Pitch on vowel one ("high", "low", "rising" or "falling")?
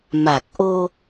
low